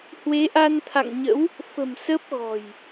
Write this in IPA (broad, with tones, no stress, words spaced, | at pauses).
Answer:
hwe˨˦ʔa˧nt̪ʰa̰˧˨ŋ ɲə̰˧˥w | fə̤˨˩m sə˦˥p̚ɣɔ̤˨˩j